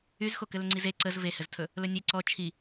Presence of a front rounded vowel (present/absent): present